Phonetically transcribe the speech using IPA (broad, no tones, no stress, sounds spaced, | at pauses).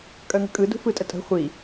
kʼ œ ŋ ə̤ kʼ ɯ d ṳ f ɯ tʼ ə tʼ ə̤ χʷ i